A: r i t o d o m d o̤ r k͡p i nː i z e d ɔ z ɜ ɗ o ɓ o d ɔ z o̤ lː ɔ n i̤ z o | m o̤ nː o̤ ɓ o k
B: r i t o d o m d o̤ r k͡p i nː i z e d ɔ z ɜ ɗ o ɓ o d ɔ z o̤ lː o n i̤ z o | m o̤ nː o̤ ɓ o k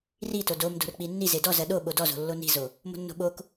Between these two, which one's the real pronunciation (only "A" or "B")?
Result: B